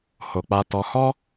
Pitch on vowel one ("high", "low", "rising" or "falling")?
low